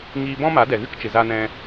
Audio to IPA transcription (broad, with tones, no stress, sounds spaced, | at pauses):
ŋ iː˧ b ɔ̃˦ m a˨˦ d ɛ˨ ɣ ɨ˦ k t͡ʃ ɨ˨ z a˦ n ɛ̃˦